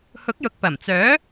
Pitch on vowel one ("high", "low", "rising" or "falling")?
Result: rising